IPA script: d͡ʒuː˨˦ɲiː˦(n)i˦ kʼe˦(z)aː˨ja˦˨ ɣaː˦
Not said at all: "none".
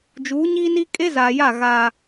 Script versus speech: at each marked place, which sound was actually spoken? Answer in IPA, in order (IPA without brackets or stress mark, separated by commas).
n, z